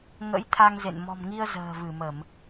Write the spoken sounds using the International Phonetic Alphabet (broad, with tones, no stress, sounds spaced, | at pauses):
ŋ ə̰˧˥ j t̪ʰ a˧ ŋ z ḛ˧˨ n m ɔ̤˨˩ m ŋ i˧ ə̯ z ə̤ː˨˩ v ɨ˧˩ m ə˧˩˨ m